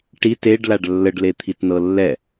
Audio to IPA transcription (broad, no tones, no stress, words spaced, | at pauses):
ʈi teɖlaɖ lːəɖlet̪ʰitnɤ lːɛ